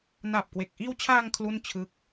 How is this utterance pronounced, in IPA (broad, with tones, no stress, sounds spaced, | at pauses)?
n a˨˩ p̚ k w e˨˩ k̚ ʔ iː˧ w t͡ɕʰ aː˧ ŋ kʰ l u˥˩ n t͡ɕʰ ɯ˦˥ k̚